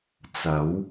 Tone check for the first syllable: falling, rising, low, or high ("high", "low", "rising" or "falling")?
rising